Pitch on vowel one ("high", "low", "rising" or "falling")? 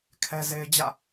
high